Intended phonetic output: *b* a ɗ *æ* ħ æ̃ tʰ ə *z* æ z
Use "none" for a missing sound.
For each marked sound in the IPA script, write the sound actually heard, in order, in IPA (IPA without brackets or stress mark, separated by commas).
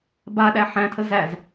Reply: b, æ, z